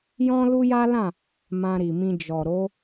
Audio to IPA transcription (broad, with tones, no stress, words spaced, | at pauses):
jɔ̃˦lu˦ja˦lã˦˨ | mã˧ɾi˨mĩ˧ d͡ʒɔ˨ ɾo˨˦